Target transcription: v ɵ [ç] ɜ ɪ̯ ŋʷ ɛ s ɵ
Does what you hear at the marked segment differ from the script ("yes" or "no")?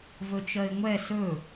yes